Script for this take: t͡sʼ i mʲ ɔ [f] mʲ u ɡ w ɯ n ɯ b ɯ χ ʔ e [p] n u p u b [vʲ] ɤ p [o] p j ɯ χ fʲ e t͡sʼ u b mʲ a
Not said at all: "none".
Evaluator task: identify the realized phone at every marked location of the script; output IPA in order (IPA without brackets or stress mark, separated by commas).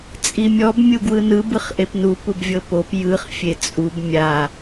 b, p, vʲ, o